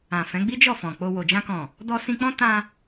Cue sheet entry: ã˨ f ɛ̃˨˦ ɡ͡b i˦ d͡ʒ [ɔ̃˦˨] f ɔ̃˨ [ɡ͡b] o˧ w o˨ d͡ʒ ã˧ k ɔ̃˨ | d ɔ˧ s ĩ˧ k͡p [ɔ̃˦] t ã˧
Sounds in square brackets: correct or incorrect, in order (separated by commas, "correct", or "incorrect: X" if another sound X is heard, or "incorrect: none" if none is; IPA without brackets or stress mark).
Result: incorrect: ɔ˦˨, incorrect: k͡p, correct